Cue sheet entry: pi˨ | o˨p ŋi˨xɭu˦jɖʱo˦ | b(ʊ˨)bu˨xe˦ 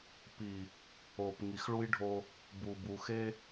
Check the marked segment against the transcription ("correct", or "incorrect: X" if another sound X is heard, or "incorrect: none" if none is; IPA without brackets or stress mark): incorrect: u˨